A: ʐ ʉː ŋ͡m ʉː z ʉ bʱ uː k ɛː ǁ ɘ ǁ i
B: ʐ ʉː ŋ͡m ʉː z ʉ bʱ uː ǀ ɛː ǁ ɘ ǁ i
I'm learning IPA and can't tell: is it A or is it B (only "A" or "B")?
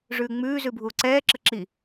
B